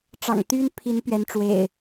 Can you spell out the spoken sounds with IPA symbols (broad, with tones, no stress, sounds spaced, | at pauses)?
ʈ͡ʂ ɑ̰˨˩ ŋ t̪ y˦ n pʰ i˨˦ n p ɥ ɛ˨˦ n ʈ͡ʂ w ḛ˨˩ ɪ̯